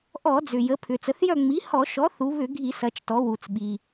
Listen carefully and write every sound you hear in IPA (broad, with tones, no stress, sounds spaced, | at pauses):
ʔ ɔ˧˩˧ d͡z ʏ˩ j ə˩˧ pʰ ʏ˩ t͡s ə˩˧ θ j œ˦˨ ŋ͡m i˩˥ h ɔ˧˩˧ ʃ ɔ˩˥ θ u˩˧ β ʏ˧˩˧ ɡʱ i˧˩˧ s ɐ˩˧ t͡ʃ t ɔ˩˧ w u˩ t͡s ɓ i˩